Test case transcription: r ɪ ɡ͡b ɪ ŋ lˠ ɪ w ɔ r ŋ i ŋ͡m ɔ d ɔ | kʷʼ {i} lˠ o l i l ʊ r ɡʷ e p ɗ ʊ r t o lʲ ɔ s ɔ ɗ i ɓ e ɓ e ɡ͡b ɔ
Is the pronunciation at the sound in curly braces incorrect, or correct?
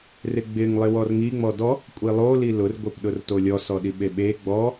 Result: correct